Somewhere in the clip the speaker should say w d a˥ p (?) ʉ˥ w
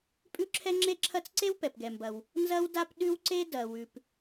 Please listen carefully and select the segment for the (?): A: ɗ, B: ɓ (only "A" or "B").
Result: A